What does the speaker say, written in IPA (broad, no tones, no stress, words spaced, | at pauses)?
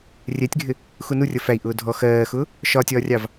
rʲɛtʲɡʱɪ | xunu rʲʌfæi̯ ʔʊːdʱɔ xɜːxʊː | ʃɒtʲɒːrʲɑv